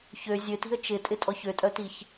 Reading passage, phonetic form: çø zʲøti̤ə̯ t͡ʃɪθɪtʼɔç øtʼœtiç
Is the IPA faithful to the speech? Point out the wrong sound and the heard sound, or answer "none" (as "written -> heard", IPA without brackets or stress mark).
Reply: θ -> tʼ